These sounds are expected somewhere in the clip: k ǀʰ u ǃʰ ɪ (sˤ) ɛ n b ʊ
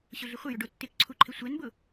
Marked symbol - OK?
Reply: no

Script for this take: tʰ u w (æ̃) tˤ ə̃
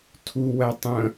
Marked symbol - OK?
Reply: no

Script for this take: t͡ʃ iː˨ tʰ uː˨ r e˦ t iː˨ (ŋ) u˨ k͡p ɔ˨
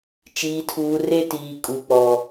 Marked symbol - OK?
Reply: no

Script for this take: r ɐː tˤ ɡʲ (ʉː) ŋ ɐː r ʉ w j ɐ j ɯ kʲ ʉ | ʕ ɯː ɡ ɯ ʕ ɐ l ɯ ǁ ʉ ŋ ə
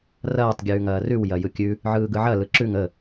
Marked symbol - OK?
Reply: yes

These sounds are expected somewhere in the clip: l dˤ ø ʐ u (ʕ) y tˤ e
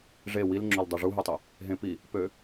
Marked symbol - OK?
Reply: no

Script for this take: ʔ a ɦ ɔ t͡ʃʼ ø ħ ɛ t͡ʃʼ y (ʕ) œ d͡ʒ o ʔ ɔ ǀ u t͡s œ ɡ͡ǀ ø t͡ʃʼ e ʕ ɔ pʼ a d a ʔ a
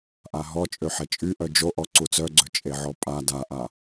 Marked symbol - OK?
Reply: no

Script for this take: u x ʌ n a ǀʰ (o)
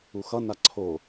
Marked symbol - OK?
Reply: yes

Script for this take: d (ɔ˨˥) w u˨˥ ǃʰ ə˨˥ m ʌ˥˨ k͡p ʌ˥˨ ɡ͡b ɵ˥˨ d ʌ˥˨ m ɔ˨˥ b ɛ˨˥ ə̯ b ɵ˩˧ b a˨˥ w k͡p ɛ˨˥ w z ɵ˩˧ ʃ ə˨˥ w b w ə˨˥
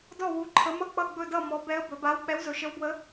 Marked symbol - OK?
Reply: no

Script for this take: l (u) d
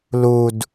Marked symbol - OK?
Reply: yes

